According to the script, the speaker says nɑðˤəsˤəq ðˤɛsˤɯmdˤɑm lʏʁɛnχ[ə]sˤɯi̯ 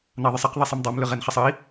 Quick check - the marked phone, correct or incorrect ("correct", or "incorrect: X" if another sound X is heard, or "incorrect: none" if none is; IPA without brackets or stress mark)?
correct